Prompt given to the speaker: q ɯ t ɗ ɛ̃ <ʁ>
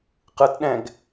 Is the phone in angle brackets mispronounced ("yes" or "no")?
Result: yes